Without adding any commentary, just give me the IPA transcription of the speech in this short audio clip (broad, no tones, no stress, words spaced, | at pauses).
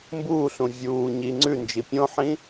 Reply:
mbuːɬũ vʲuː ɲi ŋ͡ǀʉnd͡ʒi pʲõħĩ